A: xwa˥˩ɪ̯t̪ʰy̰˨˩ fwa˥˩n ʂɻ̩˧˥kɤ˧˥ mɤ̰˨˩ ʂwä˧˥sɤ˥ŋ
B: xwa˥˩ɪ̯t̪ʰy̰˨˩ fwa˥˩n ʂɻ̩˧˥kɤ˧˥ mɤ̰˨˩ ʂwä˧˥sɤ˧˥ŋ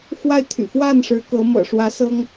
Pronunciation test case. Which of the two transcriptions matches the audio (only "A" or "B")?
A